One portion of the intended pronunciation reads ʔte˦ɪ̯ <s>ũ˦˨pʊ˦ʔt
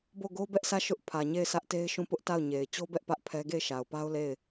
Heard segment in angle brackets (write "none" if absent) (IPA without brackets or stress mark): ʃ